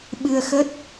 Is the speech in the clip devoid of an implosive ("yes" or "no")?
no